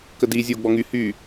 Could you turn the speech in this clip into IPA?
k ə d i zʲ o ɡ͡b ɔ ŋ y h y

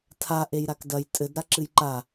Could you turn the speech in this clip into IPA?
tʰ a ʔ e j ɾ a k d ɐ j tʼ ɘ d ɾ a ǁ ɨ j ǃ a

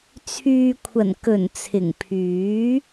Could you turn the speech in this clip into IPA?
t͡sʰ yː˨ kʷʰ ɐ˨˩ n k ɵ˨˩ n t͡sʰ ɪ˨˩ ŋ pʰ yː˨˥

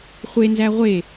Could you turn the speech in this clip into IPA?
χʷ e n z æ ʁʷ e

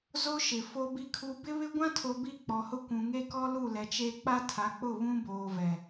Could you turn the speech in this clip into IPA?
z o˦ ʃ ɪ˨ f o˨ b i˨ kʰ u˨ b ɪ˦ β ɪ˦ ɡʷ ã˦ tʰ o˨ b i˦˨ k͡p ɔ˨ h ʊ˦ kʷ ũ˨ ŋ e˦ k ɔ˦ l u˦˨ l ɛ˨ t͡ʃ e˦ k͡p a˦ tʰ a˨˦ k͡p ʊ˦˨ β ũ˦ b oː˨ v ɛ˨

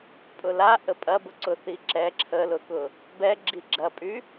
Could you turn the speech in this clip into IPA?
pʼ ʊ l a ʔ ə pʼ ɐ b ʊ ǀ ʊ θ i ǁ ɛ ǁʰ ə l ʊ k ʊ | b ɛ ɡ͡ǁ i ɡ͡ǁ ɐ pʼ y

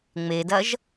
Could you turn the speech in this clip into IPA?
ŋ͡m e d ɐ ʒ

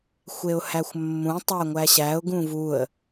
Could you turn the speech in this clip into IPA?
xʷ e ʊ̯ h æ xʷ mː ũ tˤ æ ŋʷ æ ɕ æ ʊ̯ ɡ ũ v u ə̯

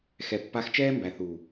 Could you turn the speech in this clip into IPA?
x ɛ˨ pː a˧ x t͡ʃ ɛː˦ m b æ˨ θ u˨

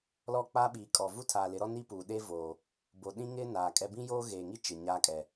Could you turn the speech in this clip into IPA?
l ɔ˦˨ k͡p aː˦ ɓ iː˨ kʼ ɔ˨ v u˦ tʰ aː˨ l ɪ˨˦ ɾ ɔ˦ n i˦ p uː˨ ɗ e˦ v oː˨ | b o˨ ɗ ĩ˦ ŋ ɪ˦ n aː˨ kʼ ɛ˦ b ĩ˦ j oː˦ ɣ eː˨ ŋ i˦ t͡ʃ ɪ˨ ɲ aː˦ kʼ ɛ˨

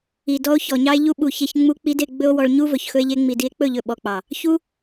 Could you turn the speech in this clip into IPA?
i˨ d ɔ˧ o̯ ç ɔ˨ ɲ ɑ˧ e̯ ʎ u˧ ɓ u˨ ç e˧ ç ŋ͡m u˦ k͡p i˦ d e˧ ɡ͡b ɵ˦ o̯ w ɔ˧ ɭ ɲ u˦ v ɵ˨ ç x ɵ˧ e̯ ʎ e˧ ŋ͡m i˨ d i˧ e̯ k͡p ɵ˦˨ ʎ ɵ˨ ɓ ɔ˨ k͡p ɑ˨ | ç u˦

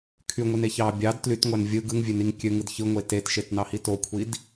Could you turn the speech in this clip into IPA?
kʰ y ŋʷ i n e ç ɑ bʲ ɑ d t l y t ŋʷ æ n vʲ ɯ ɡ ɯ ŋ vʲ ø n i ŋ kʲ ø ŋ ɯ d ç ɯ ŋʷ e t e t ʃ e t n ɑ h i t o kʷʰ i d

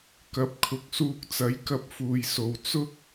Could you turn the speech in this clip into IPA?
k ɐ˨˥ p̚ kʰ ʊ˨˥ k̚ s uː˧ k̚ t͡s ɐ˨˥ j k ɐ˧ p̚ f uː˨ j s o˨ w t͡s ʊ˥ k̚

